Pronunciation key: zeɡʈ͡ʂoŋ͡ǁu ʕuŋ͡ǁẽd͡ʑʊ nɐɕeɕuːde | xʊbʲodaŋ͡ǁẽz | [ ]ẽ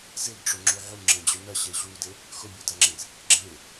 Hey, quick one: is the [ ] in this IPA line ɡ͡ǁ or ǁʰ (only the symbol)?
ɡ͡ǁ